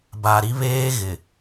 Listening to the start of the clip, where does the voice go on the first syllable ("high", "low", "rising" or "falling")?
low